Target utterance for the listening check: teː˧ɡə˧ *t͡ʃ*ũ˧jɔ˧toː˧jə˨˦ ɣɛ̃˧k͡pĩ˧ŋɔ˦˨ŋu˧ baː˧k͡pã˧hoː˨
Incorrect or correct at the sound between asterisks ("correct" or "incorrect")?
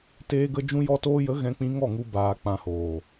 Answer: incorrect